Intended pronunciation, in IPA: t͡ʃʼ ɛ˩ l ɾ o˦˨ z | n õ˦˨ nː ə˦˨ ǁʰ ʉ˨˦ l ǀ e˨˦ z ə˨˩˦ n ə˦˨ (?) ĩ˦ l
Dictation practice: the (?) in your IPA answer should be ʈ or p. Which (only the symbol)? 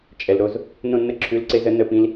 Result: p